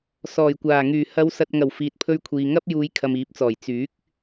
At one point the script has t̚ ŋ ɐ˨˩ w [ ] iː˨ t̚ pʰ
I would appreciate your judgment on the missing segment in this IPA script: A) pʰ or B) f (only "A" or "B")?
B